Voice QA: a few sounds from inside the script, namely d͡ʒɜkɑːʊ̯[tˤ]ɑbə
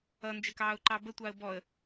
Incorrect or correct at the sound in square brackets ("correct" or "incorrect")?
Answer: incorrect